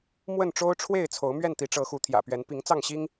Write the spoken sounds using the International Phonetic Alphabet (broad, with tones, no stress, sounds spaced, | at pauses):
m w ə˥˨ n ʈ͡ʂ o˦ ʊ̯ ʈ͡ʂʰ w e˥˨ ɪ̯ t͡sʰ o˨˦ ʊ̯ m ɥ ɛ˥˨ n t̪ i˨˦ ʈ͡ʂ ɤ˨˦ x u˨˦ t̪ʰ j ä̰˨˩ p ɥ ɛ˨˦ n p i˨˦ ŋ t͡s ɑ˥˨ ŋ ɕ i˦ ŋ